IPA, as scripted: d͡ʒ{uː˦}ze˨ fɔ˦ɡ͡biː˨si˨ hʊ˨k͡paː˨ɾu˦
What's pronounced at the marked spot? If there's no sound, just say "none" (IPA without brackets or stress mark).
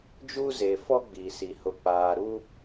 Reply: uː˦